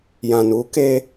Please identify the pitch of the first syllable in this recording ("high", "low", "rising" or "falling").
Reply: low